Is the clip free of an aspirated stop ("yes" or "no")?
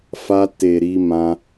yes